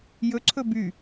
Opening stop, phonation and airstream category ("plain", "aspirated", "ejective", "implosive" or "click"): click